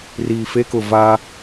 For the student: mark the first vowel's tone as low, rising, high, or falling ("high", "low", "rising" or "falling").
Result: low